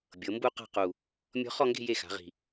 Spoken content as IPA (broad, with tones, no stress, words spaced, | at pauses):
bʲɤ˩˧ mbu˥˧qa̤˥˧qu˨˩ | mʲɔ̤˦˥ χɔ˥˧ŋɡe̤˥˧ je˥˩xa̤˩˧ʁi̤˨˩